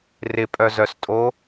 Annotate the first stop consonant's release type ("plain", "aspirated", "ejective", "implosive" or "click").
ejective